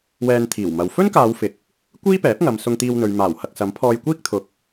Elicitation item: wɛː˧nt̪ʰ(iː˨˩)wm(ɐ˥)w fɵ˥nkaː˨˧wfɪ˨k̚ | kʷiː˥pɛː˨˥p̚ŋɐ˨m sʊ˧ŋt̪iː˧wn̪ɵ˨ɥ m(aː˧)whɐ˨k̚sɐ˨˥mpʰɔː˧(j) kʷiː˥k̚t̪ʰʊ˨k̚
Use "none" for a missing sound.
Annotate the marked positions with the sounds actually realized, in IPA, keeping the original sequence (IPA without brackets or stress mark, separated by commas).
iː˨˩, ɐ˨, aː˨˩, j